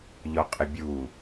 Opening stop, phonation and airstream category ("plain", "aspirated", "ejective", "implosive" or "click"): ejective